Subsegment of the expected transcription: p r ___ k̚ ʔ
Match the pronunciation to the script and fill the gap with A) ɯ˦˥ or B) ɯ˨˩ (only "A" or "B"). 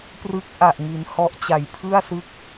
A